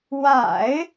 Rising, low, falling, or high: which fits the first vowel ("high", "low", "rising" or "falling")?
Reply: low